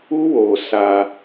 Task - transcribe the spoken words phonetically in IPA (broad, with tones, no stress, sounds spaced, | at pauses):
u˦ w oː˨ s a˦